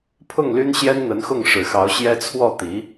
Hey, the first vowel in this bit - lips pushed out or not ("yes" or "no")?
yes